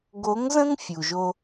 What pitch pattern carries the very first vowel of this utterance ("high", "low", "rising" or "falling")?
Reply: rising